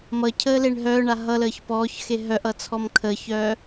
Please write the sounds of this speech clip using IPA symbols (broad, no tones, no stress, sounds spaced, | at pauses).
m ʌ cʰ əː l e ɳ ɦ œː ɳ a ɦ ʌ l əː ç p ɔː ç x e ɦ œ ʔ ʌ t͡sʰ ɔ m kʰ əː ç œː